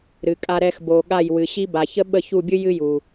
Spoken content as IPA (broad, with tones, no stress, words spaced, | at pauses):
ɾɨ˨kʼa˧ɾɛ˧x bo˨ ɠa˦˨jwɨ˨ɕi˦ba˨ çə˦ɓə˦˨çu˦˨bʲɨ˦ jɨ˦ju˨